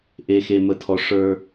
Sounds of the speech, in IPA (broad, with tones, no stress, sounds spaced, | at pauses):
ʔ e˨ x e˨ m ə˨ tʰ ɔ˨ ʂ ə˞˦